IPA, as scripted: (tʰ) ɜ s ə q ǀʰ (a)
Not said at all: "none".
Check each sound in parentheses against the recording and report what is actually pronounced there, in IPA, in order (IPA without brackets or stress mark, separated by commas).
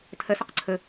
tʰ, ə